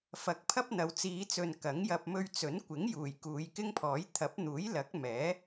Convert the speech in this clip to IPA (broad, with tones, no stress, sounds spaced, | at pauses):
f ɐ˨˥ k̚ pʰ ɐ˥ p̚ n̪ ɐ˨˧ w t͡s iː˨˧ t͡s ɵ˨ n k ɐ˨˥ ŋ j ɐ˧ p̚ m ɵ˧ ɥ t͡s ɵ˨˥ n kʷ ɪ˨˥ ŋ j uː˨˩ j k uː˨˧ j k ɪ˥ ŋ pʰ ɔː˨˥ j t̪ʰ ɐ˨˥ p̚ n̪ uː˨˥ j l ɐ˨˥ k̚ m ɛː˨˥